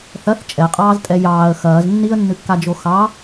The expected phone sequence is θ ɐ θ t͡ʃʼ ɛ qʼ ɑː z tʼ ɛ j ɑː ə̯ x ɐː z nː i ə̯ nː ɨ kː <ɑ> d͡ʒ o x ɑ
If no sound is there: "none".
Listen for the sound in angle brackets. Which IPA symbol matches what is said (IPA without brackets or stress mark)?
a